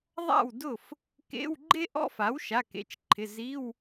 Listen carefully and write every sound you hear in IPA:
ðˤ a̰˥˩ w d ʊ˥˩ f | k ḛ˧˥˧ w ɡ͡ǃ e˥ ʔ ɔ̰˥ f a˩˥ w ʃ a˩˧˩ k ḛ˩˧˩ t͡ʃ ǃʰ ɪ˩˧˩ z i˧˥˧ w

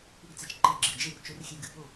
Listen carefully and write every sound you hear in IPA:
p u˧˥˧ ɡ t͡s ɛ˧˩ t͡ʃ ǃ e˧˥˧ ɡ͡ǁ ɨ˩˧˩ d͡ʒ e˥˨ r t͡ʃ o˧˥ r xʲ ɛ˧˥ ɡ ɨ˩˧˩ p o˥˨

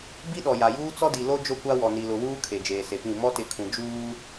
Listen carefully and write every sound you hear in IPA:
b i˦ ɗ ɔ˨ j a˨ j uː˦ t͡s ɔ˦ d i˨ l o˦ d͡ʒ o˦ kʷ a˦ w ɔ˨ n i˨ l ʊ˨ w uː˦ kʰ e˨ d͡ʒ eː˨ s e˨ p ĩ˦˨ m ɔ˦ t ɪ˨ kʰ ũ˨ d͡ʒ uː˦

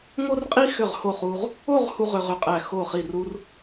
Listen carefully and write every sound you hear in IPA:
ŋ o˥ r qʼ i˥ x ʏ˧˩ ʁ h o˧˩ χ u˧ ʁ | o˥˧ ʁ h u˥ ʁ ʏ˧ ʁ ʏ˧˩ qʼ æ˧˩ x o˧˩ χ i˧˩ r u˥ r

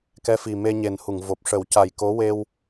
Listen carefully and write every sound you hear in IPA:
k ɛ˧˥ f i˨˩ m e˧ ɲ e˨˩ n h u˨˩˨ ŋ v o˨˩ p̚ ʂ ə˨˩˦ w c a˨˩ j k o˧˥ w e˧ w

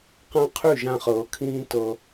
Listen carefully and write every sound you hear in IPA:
q ã˦ qʰ y˦˨ ʒ ã˧ χ ɤː˨ kʰ ĩː˦ t ɤ˧

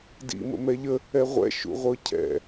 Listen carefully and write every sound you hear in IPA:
d ḭ m ə̰ m ɛ ʎ ə | ɛ ʁʷ ɛ̰ ʃ ṵ ʁʷ ɤ cʰ ɛ̰

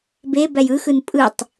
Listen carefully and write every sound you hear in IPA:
b e b æ j ɯ x ɯ n pʼ ɯ tˤ

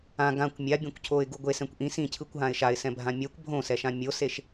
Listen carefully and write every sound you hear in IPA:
ã ɡ ã kʷ mʲ a bʲ õ kʷ cʰ o ɪ̯ ɡ u ɡʷ e s ɛ̃ kʷ ʔ ĩ s ĩ cʰ ɯ kʷ ɦ ã ɪ̯ ʃ a ɪ̯ s ɛ̃ bʱ ã mʲ ɛ kʷ bʱ õ s ɛ ʃ ã mʲ o s e ʃ

